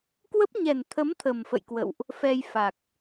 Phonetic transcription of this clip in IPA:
k w ə˦˥ p̚ ɲ ɛ˨˩ n t̪ʰ ə˨˦ m t̪ʰ ə˨˩ m f ə̰˧˨ j k w ə̰˧˨ w ʔ | f ɛ˧ j f a˨˩ k̚

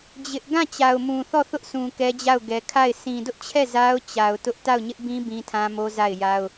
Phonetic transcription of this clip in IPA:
d͡ʑ ɪ˦ ʔ ɡ ã˦˨ t͡ɕ a˨ ʊ̯ m ũ˨ θ ɔ˦˨ θ ʊ˦ ʔ s ũ˨ k ɛ˦ d͡ʑ a˦˨ ʊ̯ ɡ ɛ˨ kʰ a˦˨ ɪ̯ s ĩ˨ d ʊ˦ ʔ t͡ɕʰ ɛ˦˨ z a˦ ʊ̯ t͡ɕ a˨ ʊ̯ t ʊ˦ ʔ t a˦˨ ʊ̯ ɲ ɪ˦ ʔ b ĩ˦ b ĩ˦ tʰ ã˦ m o˦ z a˦˨ ɪ̯ j a˦ ʊ̯

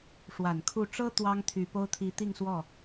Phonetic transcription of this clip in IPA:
ʂ w a˨˩ n kʰ u˥˩ ʈ͡ʂ ɤ˥ t̪ w ɑ˥ ŋ t̪ʰ y˨˩ p o˥ ʊ̯ t̪ʰ i˧˥ t̪ i˥˧ ŋ s w ɔ˥˩

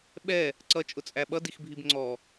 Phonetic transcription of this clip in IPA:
ɓ ɛ | ǀ ʌ t͡ʃʼ ʊ t͡sʼ æ ɓ ʌ d i x bʱ i b ŋ͡ǀ ɔ

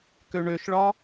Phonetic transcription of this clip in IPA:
k ø ɳ ø ʃ ɭ ɒ

